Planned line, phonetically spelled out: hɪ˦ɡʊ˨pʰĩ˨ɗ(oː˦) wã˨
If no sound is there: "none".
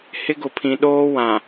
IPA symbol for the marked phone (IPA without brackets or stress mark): oː˦